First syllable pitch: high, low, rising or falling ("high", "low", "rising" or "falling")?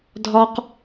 high